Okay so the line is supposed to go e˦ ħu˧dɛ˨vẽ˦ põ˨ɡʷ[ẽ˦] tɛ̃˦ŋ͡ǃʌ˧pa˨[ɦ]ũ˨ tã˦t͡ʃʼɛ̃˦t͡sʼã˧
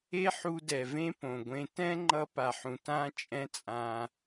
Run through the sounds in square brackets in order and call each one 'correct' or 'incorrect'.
incorrect: ẽ˧, incorrect: ħ

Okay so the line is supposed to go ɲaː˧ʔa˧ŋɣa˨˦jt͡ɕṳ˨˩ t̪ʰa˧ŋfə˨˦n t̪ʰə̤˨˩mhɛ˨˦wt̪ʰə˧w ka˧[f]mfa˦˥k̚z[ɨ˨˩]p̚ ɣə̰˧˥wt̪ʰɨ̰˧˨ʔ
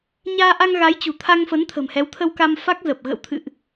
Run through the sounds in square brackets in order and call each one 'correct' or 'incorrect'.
incorrect: none, incorrect: ə˨˩

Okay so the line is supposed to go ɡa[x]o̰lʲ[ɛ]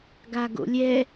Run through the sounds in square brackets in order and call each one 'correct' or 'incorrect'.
incorrect: ɡ, correct

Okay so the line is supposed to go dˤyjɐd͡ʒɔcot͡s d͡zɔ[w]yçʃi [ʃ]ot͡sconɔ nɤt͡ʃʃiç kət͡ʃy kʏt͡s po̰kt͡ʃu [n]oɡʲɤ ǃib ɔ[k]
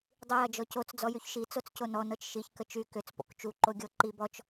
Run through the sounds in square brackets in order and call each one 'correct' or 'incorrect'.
incorrect: j, incorrect: t͡s, incorrect: ǃ, incorrect: t͡ʃ

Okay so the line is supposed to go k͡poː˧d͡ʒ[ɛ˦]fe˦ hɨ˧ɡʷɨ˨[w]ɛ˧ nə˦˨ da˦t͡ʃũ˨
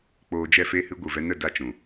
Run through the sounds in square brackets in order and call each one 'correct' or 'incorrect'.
incorrect: ɛ˦˨, incorrect: v

